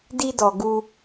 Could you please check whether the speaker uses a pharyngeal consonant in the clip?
no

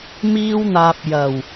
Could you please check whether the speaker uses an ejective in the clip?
no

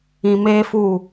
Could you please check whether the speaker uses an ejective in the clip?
no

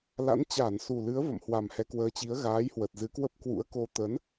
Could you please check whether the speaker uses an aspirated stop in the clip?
no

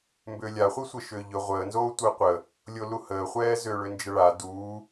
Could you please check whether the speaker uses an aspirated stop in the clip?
no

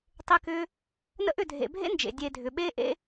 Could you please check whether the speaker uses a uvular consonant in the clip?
no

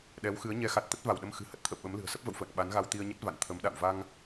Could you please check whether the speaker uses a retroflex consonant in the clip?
no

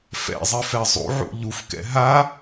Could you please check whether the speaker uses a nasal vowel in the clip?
no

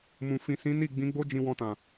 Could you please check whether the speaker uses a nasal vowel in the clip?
yes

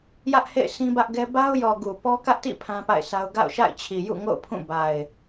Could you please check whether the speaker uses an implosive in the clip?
no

